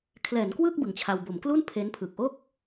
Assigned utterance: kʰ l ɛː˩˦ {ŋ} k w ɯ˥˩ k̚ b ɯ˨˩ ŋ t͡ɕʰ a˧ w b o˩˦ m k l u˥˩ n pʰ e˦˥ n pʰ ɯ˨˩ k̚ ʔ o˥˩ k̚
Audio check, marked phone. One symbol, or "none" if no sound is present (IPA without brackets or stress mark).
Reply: n